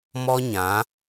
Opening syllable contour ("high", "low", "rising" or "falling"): high